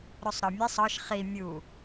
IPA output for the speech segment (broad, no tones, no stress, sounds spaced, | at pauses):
ɾ o sˤ ɾ ɒ mʲ e sˤ ɒ ʃ χ i mʲ u